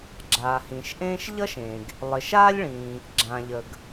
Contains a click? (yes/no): yes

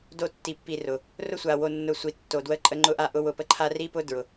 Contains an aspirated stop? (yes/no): yes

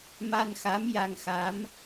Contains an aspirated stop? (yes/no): no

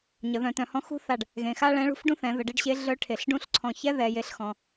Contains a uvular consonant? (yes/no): no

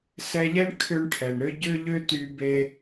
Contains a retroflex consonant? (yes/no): yes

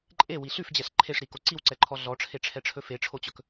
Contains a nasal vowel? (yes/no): no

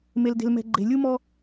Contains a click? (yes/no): yes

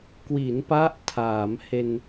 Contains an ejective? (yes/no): no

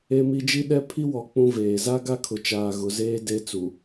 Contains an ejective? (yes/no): no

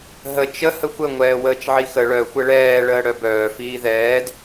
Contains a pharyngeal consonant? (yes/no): yes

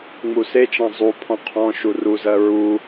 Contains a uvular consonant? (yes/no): yes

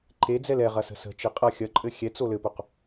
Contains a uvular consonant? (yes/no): yes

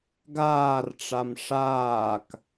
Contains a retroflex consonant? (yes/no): yes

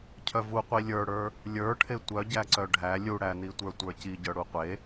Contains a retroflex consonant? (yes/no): yes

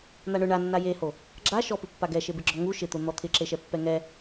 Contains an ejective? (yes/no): no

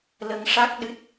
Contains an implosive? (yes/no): yes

